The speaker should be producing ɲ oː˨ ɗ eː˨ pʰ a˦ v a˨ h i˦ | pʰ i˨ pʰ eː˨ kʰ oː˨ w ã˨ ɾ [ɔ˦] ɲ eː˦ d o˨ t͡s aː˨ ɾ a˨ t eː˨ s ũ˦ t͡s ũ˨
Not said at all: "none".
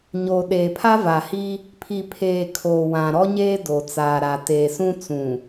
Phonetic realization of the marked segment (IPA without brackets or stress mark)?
ɔ˦